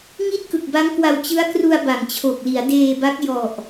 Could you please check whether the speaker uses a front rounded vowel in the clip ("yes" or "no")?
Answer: no